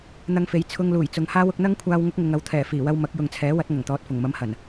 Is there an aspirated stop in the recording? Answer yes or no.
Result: yes